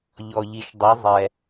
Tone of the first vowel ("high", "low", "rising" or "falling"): low